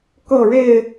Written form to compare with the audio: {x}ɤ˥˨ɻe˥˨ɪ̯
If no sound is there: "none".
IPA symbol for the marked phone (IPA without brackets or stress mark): k